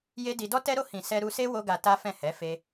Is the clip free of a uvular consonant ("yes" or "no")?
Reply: yes